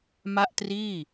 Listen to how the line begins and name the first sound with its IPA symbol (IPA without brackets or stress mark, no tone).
m